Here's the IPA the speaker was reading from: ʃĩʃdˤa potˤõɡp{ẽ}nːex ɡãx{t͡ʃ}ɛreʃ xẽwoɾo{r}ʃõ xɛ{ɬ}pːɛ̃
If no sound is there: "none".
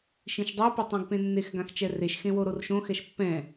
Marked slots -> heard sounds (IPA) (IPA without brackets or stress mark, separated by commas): ẽ, t͡ʃ, r, ʃ